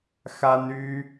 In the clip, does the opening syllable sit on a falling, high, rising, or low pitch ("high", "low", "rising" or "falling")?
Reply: high